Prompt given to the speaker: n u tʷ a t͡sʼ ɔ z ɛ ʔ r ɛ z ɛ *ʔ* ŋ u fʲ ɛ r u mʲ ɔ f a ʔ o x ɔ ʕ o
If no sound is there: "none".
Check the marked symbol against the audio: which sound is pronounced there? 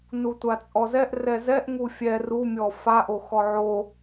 ʔ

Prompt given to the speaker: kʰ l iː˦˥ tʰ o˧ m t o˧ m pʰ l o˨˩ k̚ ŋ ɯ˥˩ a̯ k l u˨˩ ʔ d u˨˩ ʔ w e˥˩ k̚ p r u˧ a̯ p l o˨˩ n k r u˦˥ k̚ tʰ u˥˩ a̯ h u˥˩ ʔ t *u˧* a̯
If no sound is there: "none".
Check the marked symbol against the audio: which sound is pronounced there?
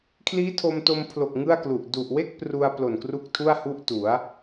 u˩˦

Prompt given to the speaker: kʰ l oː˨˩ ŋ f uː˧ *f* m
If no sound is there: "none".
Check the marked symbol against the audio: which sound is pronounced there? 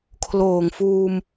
none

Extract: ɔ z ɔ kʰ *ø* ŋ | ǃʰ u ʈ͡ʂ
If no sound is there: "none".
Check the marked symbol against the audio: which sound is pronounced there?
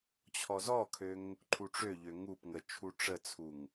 ø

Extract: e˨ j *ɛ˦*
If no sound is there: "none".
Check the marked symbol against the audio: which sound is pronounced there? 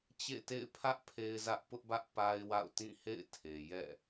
ɛ̰˦˨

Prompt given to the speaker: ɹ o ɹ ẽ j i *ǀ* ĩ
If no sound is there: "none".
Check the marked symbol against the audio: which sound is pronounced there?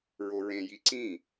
ǀ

